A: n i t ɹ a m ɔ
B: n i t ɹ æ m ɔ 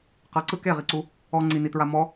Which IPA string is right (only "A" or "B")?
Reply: A